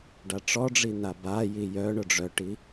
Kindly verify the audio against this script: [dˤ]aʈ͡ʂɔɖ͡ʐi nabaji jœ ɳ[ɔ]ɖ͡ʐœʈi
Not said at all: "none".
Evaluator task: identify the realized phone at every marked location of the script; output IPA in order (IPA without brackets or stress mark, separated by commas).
ɖ, ʊ